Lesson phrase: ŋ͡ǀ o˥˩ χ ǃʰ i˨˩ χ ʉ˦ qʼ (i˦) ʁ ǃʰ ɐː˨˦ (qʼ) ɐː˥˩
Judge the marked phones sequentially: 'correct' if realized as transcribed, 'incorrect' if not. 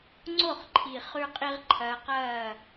correct, incorrect: q

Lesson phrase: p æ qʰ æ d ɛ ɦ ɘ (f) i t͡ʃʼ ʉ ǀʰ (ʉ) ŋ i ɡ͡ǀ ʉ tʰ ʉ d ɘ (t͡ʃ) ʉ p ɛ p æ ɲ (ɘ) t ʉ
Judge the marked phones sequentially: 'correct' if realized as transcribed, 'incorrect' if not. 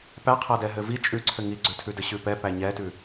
incorrect: v, incorrect: ɘ, incorrect: ɕ, incorrect: ɛ

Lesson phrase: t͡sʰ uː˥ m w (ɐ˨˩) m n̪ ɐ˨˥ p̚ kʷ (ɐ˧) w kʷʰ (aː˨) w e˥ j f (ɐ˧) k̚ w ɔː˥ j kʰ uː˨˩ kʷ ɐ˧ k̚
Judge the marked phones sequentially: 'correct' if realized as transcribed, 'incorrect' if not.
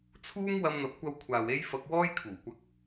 incorrect: ɐ˧, correct, correct, correct

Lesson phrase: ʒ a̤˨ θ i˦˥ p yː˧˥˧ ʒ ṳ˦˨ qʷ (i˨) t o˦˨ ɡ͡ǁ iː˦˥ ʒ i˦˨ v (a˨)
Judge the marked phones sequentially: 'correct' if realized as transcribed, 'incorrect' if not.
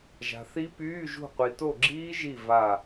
correct, incorrect: a˦˨

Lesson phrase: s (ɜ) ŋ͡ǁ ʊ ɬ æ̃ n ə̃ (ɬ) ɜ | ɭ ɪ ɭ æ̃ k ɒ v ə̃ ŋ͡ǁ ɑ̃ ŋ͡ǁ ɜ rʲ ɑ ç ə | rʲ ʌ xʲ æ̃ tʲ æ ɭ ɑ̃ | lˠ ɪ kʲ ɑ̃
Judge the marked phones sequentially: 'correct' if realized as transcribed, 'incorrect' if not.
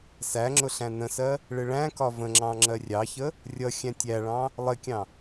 incorrect: æ, incorrect: s

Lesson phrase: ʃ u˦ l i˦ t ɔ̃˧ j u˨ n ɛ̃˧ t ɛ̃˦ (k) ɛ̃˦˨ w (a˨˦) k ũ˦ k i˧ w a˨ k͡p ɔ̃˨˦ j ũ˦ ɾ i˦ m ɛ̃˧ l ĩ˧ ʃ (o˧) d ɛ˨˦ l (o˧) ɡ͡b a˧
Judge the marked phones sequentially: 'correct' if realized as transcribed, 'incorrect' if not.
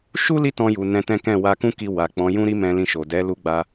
correct, incorrect: a˧, incorrect: o˨, incorrect: u˧

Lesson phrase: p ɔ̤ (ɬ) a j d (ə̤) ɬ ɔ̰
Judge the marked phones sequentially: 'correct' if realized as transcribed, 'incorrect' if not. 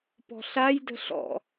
correct, correct

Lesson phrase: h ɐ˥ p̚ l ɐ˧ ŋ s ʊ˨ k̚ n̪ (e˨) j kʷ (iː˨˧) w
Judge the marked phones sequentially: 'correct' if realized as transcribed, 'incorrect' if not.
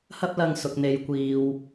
correct, incorrect: iː˨

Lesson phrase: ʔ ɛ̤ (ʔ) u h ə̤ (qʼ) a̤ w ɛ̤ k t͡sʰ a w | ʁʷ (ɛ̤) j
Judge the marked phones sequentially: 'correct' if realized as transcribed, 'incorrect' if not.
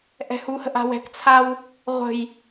incorrect: h, incorrect: ʔ, incorrect: ə̤

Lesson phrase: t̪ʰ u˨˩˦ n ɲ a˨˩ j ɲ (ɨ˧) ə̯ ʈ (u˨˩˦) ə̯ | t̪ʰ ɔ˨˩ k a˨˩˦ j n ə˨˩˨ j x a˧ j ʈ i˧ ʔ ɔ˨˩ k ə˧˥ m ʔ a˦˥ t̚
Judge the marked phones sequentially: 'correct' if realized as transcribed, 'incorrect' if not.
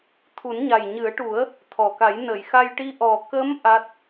incorrect: ɨ˨˩˦, correct

